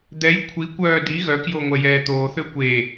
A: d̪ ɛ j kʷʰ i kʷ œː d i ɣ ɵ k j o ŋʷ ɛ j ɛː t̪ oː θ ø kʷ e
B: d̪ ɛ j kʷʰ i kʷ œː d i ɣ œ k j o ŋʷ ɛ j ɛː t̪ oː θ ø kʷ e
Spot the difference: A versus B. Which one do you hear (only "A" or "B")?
B